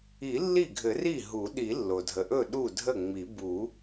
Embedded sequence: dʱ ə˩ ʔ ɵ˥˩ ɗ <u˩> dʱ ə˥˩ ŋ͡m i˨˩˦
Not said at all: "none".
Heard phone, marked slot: u˥˩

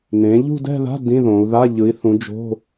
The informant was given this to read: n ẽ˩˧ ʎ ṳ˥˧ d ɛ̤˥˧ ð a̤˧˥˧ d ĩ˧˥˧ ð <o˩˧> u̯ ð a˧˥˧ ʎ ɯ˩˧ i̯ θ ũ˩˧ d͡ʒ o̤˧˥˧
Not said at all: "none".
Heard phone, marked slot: õ˩˧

